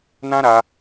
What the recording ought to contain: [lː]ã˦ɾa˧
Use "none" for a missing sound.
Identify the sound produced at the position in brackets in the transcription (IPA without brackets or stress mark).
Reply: n